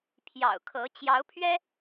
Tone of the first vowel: low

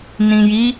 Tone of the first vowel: low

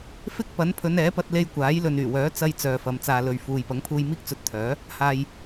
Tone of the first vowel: high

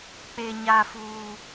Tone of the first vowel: high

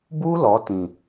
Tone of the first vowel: high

